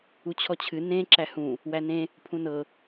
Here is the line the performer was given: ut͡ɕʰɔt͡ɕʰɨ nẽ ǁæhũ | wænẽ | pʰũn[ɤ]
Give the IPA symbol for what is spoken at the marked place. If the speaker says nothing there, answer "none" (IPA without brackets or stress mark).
ɤ